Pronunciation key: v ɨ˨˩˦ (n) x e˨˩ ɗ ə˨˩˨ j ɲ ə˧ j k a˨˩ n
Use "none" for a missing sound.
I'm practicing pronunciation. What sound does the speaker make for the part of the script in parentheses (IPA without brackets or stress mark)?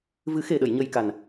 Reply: none